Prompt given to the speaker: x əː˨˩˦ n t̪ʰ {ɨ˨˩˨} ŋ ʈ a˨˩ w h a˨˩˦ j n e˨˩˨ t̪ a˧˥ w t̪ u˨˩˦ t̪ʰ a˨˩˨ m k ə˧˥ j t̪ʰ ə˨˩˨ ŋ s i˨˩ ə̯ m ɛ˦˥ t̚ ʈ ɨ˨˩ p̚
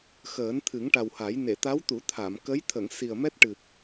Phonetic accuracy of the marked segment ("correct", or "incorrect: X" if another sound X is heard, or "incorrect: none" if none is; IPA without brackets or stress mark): incorrect: ɨ˨˩˦